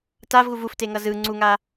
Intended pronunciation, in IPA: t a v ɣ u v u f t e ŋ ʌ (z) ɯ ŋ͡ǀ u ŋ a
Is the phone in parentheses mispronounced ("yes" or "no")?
no